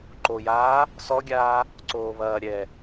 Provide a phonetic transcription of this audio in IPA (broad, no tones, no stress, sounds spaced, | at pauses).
ǃ o j aː | s ɔ ɡʲ aː | ǀ oː β ɐː ɾʲ ɛ